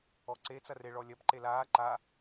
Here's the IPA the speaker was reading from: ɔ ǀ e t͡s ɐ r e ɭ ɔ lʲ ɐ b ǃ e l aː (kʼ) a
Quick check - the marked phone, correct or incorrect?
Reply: incorrect